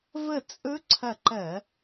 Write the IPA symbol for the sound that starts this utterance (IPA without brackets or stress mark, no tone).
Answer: v